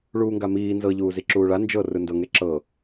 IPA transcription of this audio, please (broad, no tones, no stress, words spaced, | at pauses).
ɭuːŋɡamiː nzɤ ʎuːziǁuːɭa nd͡ʒɤ rɯndɤ ŋeǁɤ